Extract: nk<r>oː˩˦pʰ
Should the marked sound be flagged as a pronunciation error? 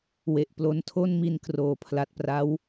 no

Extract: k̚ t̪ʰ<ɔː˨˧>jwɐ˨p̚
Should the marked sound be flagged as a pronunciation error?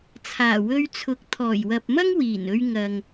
yes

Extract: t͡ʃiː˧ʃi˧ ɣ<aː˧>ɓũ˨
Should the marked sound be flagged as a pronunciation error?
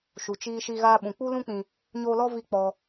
no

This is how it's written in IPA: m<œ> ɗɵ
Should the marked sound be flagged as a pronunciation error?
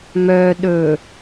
no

